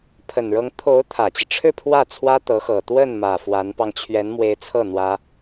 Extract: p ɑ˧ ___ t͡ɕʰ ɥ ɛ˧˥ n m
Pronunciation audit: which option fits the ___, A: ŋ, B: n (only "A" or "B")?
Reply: A